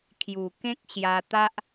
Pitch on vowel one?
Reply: low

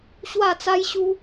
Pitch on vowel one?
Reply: falling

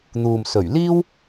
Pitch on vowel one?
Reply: low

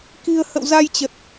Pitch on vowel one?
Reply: low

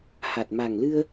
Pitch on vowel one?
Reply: low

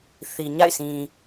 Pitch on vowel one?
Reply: low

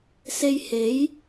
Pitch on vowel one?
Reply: high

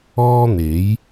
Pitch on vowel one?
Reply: high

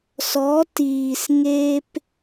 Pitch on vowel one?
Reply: rising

